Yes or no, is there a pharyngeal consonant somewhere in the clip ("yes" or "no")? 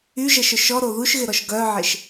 yes